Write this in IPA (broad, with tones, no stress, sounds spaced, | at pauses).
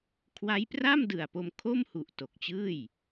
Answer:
kʰ w a˦˥ j p r a˥˩ m d ɯ˨˩ a̯ p o˧ m kʰ o˥˩ m h u˨˩ ʔ t o˨˩ k̚ t͡ɕ ɯː˥˩ j